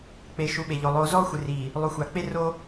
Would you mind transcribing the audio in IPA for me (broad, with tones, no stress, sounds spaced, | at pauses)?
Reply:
k͡p e˨ ʃ u˨ ɓ e˨ ʎ o˨ lˠ o˦ z ɔ˦ xʷ ɨ˨ r i˨ | lˠ u˨ xʷ a˨ k͡p e˦ r o˦